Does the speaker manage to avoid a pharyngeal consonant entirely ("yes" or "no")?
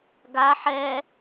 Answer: no